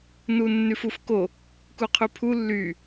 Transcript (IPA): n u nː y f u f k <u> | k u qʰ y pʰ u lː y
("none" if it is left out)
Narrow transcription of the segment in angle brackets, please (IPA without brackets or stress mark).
o